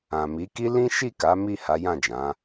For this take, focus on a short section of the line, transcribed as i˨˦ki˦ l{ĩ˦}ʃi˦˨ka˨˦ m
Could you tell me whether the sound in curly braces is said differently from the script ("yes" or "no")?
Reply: no